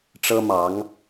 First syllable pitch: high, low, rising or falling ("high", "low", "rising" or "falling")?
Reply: high